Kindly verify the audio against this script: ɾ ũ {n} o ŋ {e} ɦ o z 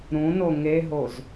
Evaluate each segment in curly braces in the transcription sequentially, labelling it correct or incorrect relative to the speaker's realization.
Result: correct, correct

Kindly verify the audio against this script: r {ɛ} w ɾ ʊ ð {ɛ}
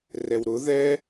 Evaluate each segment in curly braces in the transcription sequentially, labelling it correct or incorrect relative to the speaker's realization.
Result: correct, correct

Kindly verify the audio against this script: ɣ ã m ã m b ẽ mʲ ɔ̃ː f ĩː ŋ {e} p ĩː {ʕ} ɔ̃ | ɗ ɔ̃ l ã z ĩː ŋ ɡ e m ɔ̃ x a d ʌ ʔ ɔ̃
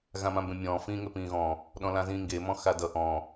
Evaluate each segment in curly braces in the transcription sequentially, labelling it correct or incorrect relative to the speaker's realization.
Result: incorrect, incorrect

